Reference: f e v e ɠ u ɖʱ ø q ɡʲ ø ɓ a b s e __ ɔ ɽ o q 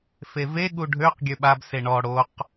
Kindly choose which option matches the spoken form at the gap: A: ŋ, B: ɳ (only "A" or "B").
B